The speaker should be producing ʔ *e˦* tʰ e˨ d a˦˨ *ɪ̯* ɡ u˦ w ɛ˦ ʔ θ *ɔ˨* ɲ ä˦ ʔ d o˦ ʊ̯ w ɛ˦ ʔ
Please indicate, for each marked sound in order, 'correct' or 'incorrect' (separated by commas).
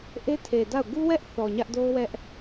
correct, incorrect, correct